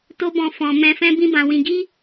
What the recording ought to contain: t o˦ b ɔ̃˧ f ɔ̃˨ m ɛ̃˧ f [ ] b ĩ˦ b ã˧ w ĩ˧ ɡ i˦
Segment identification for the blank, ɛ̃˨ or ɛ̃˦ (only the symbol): ɛ̃˦